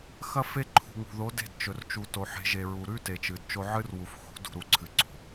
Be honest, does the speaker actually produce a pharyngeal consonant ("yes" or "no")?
yes